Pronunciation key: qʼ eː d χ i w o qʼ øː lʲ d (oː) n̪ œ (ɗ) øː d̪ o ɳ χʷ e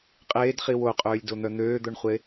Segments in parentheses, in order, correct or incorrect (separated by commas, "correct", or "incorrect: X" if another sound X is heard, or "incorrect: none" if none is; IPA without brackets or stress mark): incorrect: o, incorrect: n̪